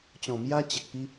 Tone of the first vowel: low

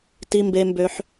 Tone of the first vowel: high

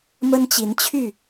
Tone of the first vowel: high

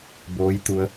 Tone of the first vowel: rising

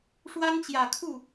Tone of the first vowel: high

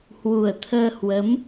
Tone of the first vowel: low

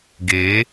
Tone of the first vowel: rising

